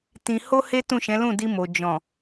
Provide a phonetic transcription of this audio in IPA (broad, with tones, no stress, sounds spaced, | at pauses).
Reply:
t ĩ˧ h o˦ h e˦ t ũ˦˨ ʃ ɛ̃˨˦ l ũ˦˨ d i˧ m o˨ d͡ʒ ɔ̃˨